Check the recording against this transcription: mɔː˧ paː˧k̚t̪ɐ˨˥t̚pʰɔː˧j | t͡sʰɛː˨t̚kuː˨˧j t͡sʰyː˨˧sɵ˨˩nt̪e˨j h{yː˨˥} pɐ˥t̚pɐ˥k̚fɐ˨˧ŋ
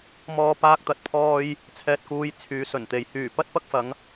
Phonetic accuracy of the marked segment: incorrect: yː˨˩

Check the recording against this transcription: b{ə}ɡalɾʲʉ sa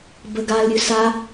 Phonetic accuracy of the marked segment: correct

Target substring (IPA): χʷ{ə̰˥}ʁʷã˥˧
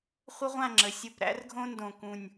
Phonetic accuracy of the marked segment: incorrect: ə˥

